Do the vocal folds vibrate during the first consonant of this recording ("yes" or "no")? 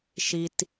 no